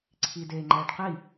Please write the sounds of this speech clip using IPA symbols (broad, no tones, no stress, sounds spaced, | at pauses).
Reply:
ǀʰ i d e ŋ͡ǃ ɛ ɖ q i